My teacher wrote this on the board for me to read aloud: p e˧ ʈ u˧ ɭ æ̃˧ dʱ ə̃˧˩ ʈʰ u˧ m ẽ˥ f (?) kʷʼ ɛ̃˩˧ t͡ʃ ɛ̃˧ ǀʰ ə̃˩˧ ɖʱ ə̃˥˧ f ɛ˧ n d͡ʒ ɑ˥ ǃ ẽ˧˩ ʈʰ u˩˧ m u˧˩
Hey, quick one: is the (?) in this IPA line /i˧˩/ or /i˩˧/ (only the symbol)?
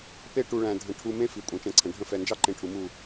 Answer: i˩˧